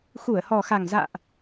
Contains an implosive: no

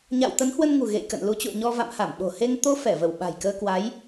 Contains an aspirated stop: no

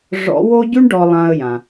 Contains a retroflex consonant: yes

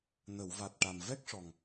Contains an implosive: no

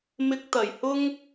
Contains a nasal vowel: no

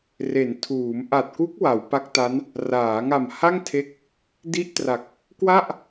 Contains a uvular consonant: no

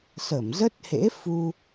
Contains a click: no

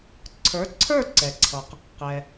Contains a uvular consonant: yes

